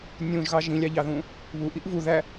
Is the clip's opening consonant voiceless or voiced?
voiced